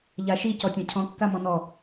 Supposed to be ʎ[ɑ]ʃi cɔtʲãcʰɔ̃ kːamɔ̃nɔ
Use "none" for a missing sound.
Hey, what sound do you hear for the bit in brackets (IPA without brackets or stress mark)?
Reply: a